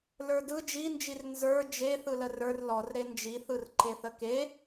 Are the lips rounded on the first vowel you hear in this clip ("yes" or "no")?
no